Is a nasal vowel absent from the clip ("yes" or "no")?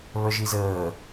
yes